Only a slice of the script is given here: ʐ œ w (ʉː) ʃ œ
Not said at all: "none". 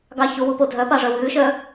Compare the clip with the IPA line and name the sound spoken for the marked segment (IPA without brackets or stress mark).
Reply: ʉː